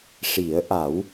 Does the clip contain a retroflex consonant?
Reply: yes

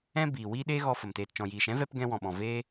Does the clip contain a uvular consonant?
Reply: no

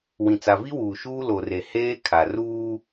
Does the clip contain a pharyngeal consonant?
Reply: no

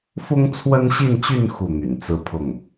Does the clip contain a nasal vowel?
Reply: no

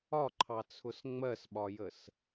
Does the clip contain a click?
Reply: yes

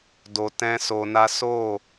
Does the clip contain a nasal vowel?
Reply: yes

